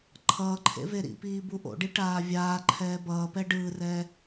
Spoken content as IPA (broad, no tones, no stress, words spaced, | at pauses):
ǃʰʌːǃʰḛ veɾḭpiː buʔo̰ɖi ʈaːvʲaːǃʰɛː bʌːpɛ ɖɯːrɛː